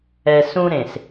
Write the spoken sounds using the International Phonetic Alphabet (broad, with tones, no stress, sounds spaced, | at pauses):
ɛ˨ s ũ˦ ɾ ẽ˨ s